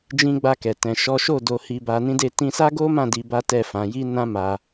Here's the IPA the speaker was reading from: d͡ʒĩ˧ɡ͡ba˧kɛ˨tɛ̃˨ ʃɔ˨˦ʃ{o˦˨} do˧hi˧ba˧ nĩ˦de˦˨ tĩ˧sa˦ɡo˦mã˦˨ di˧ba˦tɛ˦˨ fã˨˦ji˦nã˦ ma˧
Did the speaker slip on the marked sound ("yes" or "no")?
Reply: no